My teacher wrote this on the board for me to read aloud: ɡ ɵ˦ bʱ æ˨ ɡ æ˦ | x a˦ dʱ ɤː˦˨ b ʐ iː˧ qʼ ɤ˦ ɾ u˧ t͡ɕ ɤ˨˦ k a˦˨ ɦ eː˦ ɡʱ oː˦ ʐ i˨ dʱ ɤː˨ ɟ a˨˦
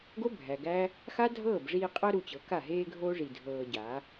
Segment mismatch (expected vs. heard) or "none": ɵ˦ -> o˦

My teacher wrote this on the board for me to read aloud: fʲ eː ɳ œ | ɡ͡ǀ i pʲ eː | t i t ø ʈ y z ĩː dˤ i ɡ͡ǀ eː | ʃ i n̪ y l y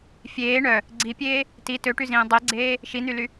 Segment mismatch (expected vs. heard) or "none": none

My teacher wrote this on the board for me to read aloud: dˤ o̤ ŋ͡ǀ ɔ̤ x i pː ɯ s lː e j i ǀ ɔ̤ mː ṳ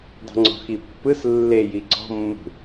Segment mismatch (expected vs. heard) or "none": o̤ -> ṳ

